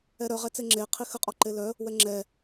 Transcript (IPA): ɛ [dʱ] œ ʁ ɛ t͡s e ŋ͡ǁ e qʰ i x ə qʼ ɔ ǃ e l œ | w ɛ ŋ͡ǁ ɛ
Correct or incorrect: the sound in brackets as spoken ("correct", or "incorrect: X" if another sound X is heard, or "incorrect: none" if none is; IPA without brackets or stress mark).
incorrect: ɾ